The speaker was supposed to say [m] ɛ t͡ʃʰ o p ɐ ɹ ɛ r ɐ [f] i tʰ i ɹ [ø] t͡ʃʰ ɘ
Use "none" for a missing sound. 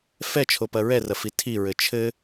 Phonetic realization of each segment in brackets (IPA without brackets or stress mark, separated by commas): f, f, ɘ